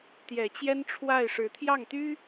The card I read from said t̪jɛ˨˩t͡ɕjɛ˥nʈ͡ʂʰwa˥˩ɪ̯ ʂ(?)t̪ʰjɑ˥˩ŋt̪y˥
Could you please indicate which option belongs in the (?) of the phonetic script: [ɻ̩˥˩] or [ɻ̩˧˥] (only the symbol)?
ɻ̩˧˥